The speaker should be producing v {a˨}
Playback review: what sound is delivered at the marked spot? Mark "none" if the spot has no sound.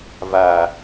aː˨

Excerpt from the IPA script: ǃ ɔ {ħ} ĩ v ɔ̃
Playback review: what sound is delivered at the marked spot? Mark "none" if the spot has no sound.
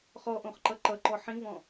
ħ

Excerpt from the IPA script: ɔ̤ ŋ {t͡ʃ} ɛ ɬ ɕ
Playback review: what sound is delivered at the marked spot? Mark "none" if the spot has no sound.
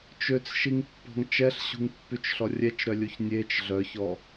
t͡ʃ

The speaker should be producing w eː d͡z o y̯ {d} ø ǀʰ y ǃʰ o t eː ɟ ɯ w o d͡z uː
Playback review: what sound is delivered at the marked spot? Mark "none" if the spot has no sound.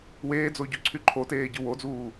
ɟ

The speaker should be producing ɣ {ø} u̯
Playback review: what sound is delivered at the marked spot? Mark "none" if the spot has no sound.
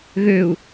ø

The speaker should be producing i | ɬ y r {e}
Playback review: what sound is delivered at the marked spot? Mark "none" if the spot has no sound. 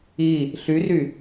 y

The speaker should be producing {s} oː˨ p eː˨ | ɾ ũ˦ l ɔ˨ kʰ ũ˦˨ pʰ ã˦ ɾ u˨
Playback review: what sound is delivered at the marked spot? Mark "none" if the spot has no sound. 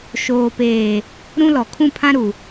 ʃ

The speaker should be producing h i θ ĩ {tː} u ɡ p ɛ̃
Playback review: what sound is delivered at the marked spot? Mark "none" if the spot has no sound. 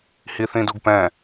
d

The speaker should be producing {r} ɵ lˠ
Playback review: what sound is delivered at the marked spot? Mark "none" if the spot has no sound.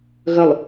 ɣ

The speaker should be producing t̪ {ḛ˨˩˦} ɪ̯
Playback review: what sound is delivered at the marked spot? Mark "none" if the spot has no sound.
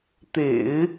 ḛ˨˩˦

